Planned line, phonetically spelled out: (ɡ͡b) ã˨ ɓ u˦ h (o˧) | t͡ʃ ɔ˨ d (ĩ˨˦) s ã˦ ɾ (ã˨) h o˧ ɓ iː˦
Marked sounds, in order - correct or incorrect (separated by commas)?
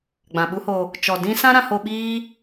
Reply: correct, correct, incorrect, incorrect